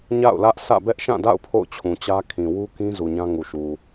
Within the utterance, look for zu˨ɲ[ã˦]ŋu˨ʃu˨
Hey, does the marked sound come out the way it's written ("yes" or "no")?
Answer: yes